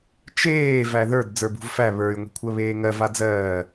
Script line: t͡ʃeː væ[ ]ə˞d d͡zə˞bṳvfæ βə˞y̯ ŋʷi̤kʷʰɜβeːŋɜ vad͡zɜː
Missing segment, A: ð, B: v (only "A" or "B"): A